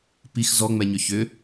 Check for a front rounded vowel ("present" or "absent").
present